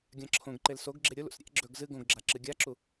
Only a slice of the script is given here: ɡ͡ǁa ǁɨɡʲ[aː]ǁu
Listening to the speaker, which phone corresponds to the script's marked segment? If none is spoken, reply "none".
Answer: a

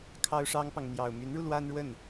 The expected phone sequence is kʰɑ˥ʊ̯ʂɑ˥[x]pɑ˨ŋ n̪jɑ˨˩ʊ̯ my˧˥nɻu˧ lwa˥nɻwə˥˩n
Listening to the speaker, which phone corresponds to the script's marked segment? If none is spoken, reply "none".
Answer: ŋ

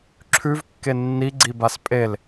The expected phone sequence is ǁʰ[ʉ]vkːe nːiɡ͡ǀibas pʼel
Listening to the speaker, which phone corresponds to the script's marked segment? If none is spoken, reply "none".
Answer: ʉ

